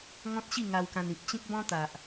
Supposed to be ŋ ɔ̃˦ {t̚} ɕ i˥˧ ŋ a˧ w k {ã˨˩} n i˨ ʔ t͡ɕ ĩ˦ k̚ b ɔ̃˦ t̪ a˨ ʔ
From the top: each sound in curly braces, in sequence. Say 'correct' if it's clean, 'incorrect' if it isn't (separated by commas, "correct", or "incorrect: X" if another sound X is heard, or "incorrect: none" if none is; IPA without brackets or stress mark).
correct, incorrect: ã˧